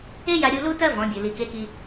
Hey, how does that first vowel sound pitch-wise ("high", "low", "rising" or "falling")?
high